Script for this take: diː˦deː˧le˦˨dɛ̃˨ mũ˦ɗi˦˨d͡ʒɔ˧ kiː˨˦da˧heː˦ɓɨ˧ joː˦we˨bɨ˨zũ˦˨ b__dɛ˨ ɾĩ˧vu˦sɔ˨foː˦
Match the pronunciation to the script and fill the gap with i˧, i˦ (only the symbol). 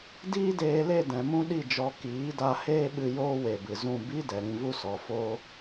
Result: i˦